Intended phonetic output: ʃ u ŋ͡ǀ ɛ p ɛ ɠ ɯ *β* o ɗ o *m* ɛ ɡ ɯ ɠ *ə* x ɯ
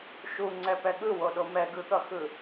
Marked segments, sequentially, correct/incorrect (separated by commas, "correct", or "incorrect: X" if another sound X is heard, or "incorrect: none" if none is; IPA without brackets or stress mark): incorrect: w, correct, incorrect: ʌ